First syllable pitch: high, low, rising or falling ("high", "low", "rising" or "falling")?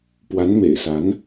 rising